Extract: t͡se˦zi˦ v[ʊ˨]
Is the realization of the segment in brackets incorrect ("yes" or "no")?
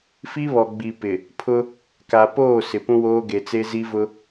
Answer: yes